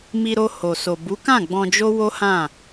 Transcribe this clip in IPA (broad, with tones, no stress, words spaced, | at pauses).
mi˧ɾo˧ ho˨so˨ bu˨˦kã˦˨ ɡ͡bɔ̃˧d͡ʒo˦ wo˦hã˦˨